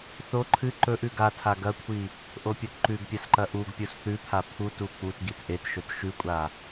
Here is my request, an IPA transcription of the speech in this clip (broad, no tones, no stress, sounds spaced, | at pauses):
θ o ǃʰ ɨ ǃ ɵ ʔ ʉ ɡ a tʰ a ɡ ɐ kʷʰ i | ʔ o pʲ o t ǃ ʉ ɡ pʲ a s ǃ ɐ ʔ u ɡ pʲ o s θ ʉ pʰ a pʰ u t u k͡p u t ɡ i t ʔ e t ʃ ɵ t ʃ ʉ kʷʼ a